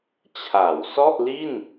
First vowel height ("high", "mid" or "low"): low